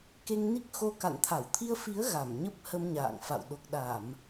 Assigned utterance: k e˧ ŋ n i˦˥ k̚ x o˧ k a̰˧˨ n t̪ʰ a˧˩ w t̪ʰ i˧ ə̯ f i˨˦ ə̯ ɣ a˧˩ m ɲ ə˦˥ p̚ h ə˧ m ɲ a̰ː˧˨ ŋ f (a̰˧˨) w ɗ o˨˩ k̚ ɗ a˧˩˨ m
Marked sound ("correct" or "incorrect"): correct